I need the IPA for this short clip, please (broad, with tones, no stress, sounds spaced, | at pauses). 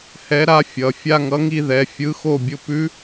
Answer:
h ɛ˧˥ ɾ a˧˥ fʲ ʌ˩˧˩ fʲ a˥˧ ŋ ʌ˧˥ ŋ i˥˧ ð ɛ˩˧˩ fʲ ɯ˧˥ x o˥˧ bʲ ʊ˧˥ p ʉ˧˥